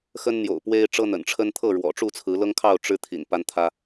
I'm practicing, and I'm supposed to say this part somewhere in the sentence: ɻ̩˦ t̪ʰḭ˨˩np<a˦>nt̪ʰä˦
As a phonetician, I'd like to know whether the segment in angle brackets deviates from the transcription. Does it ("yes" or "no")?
no